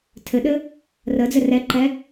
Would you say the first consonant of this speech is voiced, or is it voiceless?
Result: voiceless